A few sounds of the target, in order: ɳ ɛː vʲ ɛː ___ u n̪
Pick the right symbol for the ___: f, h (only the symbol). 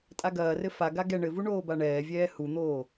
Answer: h